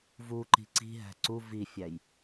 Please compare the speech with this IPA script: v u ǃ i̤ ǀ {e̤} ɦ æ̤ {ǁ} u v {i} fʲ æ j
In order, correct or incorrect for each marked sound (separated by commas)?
incorrect, incorrect, correct